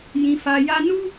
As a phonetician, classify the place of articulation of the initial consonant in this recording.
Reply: palatal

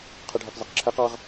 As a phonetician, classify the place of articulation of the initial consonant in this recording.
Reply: uvular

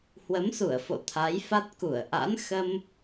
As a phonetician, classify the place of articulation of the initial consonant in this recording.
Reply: glottal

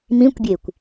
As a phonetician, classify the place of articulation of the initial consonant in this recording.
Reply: labial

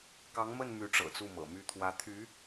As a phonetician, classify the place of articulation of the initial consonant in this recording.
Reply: velar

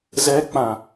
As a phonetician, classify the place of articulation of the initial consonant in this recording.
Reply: alveolar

